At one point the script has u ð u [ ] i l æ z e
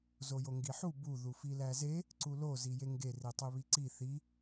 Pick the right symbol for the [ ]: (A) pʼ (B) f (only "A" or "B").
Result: B